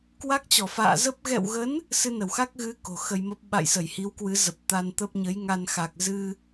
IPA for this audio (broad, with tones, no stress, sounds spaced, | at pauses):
k w a˦˥ k̚ t͡ɕ ɔ˧˩ f a̰ː˧˨ z ə˦˥ p̚ ɣ ɛ̰˧˨ w ɣ ə˨˦ n | s ɨ˧ n ə˧˩ w x a˦˥ k̚ ɣ ɨ˨˦ k o̤˨˩ x ə˧ j m ə˦˥ p̚ ɓ a̰˧˨ j s ə˧˩ j h i˨˦ w k w ɨ˨˦ z ə˨˩ p̚ t̪ a˧ n t̪ ə˦˥ p̚ ɲ ə˨˦ j ŋ a˧ n x a˨˩ k̚ z ɨ˧